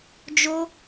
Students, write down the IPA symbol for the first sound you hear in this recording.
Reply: d͡ʒ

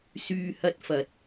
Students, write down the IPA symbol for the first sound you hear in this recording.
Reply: s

